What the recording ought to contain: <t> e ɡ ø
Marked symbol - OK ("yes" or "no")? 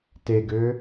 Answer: yes